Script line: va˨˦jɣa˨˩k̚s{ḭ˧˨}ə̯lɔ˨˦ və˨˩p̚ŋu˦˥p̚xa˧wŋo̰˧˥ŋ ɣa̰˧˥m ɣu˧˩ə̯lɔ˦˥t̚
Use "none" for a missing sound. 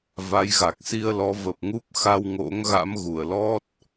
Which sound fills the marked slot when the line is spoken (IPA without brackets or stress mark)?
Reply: i˧